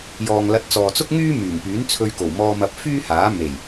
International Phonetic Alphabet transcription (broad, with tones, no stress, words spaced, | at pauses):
jɔː˨ŋlɐ˨˥t̚ t͡sɔː˨t͡sʊ˥k̚ŋyː˥ myː˨˩ŋpyː˨˥nt͡sʰɵ˧ɥko˨˩w mɔː˧mɐ˧p̚ fyː˥haː˨˥ me˨˩j